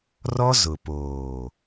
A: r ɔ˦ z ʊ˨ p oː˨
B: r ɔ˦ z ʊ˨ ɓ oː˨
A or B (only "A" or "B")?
A